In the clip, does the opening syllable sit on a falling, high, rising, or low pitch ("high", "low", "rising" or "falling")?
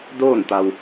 falling